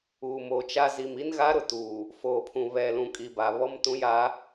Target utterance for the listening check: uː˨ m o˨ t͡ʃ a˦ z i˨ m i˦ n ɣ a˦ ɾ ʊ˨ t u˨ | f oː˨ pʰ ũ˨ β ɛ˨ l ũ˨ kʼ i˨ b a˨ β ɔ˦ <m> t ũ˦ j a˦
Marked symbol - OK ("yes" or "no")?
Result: yes